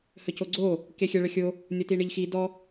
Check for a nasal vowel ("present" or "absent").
absent